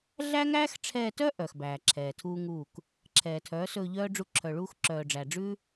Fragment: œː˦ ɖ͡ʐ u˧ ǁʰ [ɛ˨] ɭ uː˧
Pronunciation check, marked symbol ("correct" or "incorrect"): incorrect